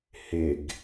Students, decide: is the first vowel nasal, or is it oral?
oral